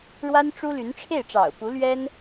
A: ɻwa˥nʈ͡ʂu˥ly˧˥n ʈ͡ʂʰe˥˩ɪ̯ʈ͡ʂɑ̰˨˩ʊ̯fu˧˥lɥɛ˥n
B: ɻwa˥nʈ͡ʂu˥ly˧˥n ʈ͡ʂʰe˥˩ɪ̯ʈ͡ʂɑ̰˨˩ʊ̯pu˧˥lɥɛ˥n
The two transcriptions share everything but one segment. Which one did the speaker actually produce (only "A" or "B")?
B